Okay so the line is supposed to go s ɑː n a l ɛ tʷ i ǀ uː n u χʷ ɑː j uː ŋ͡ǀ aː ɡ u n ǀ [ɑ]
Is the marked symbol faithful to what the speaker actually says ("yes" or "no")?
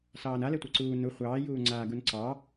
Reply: yes